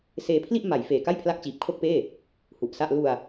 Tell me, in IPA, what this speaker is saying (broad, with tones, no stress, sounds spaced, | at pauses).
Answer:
s eː˧ pʰ l i˥˩ ʔ m a˩˦ j f eː˨˩ k a˥˩ j pʰ l a˦˥ k̚ t͡ɕ iː˨˩ p̚ kʰ o˥˩ k̚ p eː˥˩ | h u˨˩ ʔ s a˥˩ ʔ l u˧ a̯